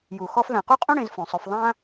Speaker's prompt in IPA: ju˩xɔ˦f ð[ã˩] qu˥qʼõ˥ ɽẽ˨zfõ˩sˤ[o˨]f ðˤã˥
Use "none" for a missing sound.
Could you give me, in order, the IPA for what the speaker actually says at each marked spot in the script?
ã˩, o˨

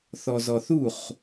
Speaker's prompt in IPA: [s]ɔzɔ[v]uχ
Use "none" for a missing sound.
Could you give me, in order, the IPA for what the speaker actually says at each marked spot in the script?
θ, θ

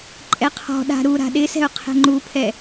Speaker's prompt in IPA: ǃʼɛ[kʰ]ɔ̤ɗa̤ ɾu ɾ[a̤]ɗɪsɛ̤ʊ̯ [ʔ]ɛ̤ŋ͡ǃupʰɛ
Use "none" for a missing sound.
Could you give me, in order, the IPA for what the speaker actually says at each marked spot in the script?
qʰ, a̤, qʰ

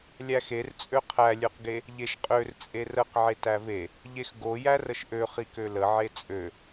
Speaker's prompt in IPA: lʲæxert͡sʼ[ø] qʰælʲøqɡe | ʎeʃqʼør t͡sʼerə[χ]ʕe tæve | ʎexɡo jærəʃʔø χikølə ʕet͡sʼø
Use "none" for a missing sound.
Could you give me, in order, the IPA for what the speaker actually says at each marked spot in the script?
ø, q

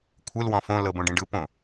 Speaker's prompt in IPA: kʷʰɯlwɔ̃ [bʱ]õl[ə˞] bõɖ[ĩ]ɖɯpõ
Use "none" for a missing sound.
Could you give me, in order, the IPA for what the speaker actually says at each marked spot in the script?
f, ɤ, ĩ

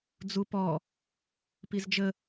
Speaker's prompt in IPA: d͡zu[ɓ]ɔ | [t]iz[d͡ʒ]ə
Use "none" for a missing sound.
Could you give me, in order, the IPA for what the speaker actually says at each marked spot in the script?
p, p, d͡ʒ

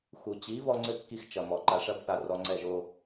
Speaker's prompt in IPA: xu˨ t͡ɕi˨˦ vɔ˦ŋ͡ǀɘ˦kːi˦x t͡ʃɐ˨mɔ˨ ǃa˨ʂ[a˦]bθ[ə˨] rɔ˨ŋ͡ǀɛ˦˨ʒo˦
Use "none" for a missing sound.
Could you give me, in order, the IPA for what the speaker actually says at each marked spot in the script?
ɐ˦, a˨

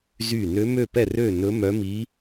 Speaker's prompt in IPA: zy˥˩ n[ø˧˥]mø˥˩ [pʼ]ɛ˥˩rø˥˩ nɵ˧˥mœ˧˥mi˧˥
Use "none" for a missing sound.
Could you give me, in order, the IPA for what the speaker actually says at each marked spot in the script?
ø˧˥, p

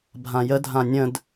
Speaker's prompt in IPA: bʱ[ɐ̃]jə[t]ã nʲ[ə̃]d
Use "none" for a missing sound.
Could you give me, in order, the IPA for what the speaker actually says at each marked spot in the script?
ã, dʱ, ə̃

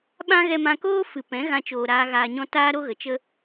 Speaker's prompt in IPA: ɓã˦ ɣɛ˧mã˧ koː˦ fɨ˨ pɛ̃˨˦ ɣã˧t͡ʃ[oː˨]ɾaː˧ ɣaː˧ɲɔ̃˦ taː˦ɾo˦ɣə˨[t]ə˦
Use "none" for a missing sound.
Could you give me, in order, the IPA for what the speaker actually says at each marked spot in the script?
oː˨, t͡ʃ

